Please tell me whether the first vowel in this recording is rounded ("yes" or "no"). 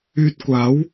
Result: yes